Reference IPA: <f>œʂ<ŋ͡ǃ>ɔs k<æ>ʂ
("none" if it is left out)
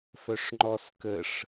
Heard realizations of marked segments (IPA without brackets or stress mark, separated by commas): f, ŋ͡ǃ, ə